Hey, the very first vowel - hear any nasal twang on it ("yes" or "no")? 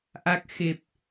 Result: no